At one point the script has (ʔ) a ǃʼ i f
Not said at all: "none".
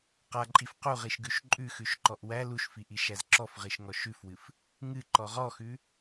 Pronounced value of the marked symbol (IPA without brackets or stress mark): q